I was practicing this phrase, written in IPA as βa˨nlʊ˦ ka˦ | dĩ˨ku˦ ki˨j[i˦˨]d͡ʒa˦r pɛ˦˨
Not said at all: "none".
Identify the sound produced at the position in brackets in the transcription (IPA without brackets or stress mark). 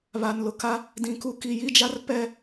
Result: i˦˨